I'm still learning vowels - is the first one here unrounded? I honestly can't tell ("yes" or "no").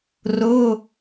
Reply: no